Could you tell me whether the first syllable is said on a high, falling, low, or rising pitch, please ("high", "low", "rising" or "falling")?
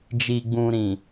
low